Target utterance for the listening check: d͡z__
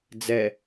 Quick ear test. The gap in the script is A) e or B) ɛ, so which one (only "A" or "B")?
B